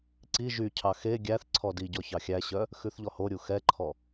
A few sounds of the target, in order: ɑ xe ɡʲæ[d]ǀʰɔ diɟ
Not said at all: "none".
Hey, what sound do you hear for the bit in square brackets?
θ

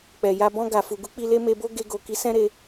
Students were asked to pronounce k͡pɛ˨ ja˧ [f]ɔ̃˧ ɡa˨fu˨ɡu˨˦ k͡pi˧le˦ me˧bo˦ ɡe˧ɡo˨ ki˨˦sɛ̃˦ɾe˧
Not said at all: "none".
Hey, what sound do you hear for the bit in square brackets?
b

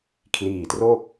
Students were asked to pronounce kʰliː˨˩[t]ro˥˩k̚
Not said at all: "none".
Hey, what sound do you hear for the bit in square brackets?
t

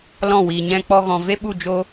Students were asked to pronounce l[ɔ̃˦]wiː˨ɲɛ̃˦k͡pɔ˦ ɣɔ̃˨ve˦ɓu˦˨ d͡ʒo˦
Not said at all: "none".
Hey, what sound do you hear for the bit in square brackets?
ɔ̃˦˨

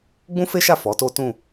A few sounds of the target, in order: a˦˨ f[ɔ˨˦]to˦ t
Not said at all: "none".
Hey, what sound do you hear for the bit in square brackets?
ɔ˨˦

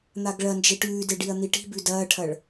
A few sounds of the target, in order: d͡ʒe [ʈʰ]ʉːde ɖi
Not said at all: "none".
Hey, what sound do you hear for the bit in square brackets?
ʈ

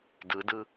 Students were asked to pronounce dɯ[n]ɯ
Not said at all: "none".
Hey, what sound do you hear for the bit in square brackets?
d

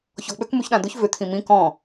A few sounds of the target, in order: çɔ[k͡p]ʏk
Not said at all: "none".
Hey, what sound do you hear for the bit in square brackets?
k͡p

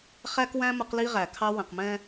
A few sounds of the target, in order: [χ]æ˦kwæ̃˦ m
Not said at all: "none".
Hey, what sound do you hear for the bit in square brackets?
χ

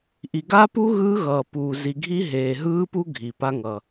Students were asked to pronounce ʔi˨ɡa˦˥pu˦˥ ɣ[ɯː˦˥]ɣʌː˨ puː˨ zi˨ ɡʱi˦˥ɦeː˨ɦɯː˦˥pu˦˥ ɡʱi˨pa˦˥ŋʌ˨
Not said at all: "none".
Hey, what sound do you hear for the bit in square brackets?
ɯː˦˥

